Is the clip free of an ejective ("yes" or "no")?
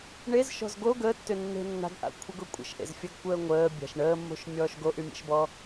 no